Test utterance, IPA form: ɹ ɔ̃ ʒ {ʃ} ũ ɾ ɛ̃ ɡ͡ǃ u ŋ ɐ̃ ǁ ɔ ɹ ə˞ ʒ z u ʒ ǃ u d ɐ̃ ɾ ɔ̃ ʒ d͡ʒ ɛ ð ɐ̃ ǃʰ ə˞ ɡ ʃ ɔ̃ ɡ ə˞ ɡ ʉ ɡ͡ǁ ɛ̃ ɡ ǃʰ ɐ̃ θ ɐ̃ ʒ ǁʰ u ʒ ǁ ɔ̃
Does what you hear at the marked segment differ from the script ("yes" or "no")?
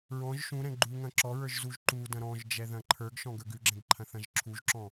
no